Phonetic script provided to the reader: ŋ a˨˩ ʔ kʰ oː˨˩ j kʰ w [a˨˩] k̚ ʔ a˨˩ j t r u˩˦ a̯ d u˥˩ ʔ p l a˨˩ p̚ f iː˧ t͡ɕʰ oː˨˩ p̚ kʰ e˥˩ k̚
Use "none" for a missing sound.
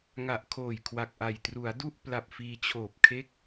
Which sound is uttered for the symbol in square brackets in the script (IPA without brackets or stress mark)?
a˨˩